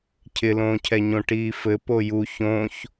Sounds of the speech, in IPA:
cʰ ɪ l õː cʰ ɛ ɲ õ ʈ iː f ɘ p o j u ç õ ç

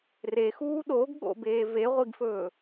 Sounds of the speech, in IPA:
r e x uː ɗ o ɡ ɠ o̰ b eː v e ʁʷ i ɡ f ɵː

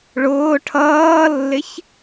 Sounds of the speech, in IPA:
ɭ ʊː ʈʰ ʌː lː ɪ ç

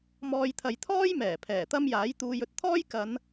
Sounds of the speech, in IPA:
m ɔː˧ j t̪ʰ ɐ˨˧ j t̪ʰ ɔː˥ j m ɛː˨˩ pʰ ɛː˨˩ t̪ ɐ˥ m j aː˨˥ j t̪ uː˧ j ɵ˧ t̚ t̪ʰ ɔː˥ j k ɐ˨˧ n

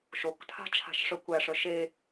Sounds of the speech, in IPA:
ʃ o k tʰ a̤ t͡ʃʰ a̤ ʃ ʂ œ kʷ æ ʂ œ ʃ e

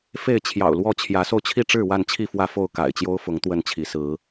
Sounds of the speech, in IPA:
f e˥˨ ɪ̯ t͡ɕʰ j ɑ̰˨˩ ʊ̯ l w ɔ˥˨ t͡ɕʰ j ä˨˦ s o˧ ʊ̯ t͡ɕʰ i˥˨ ʈ͡ʂ ɻ̩˥˨ w a˥˨ n t͡ɕʰ i˥˨ f w ä˥˨ f o˥˨ ʊ̯ k a̰˨˩ ɪ̯ t͡ɕ j o˦ ʊ̯ f ʊ˨˦ ŋ t̪ w ə˥˨ n t͡ɕʰ i˨˦ s ɹ̩˨˦

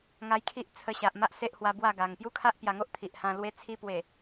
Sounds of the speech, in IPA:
ŋ a˧ j kʰ i˦ ʔ t͡sʰ ə˧ ɕ a˨ ʔ m a˦ ʔ s e˦ ʔ h w a˧ b w a˥˧ ɡ a˨˩ ŋ p j u˦ kʰ a˦ ʔ p j a˧ ŋ o˦ ʔ t̪ʰ i˨ ʔ h ã˧ l w e˧ t͡sʰ i˧ p w e˨˩

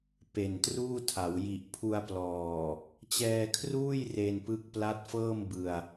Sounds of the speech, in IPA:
p e˨˩ n t r uː˥˩ tʰ a˩˦ w j i˨˩ ʔ pʰ u˧ a̯ p l ɔː˨˩ | t͡ɕ ɛː˧ kʰ r uː˥˩ j r e˧ n p ɯ˦˥ k̚ p l a˦˥ t̚ f ɤː˥˩ m b ɯ˧ a̯

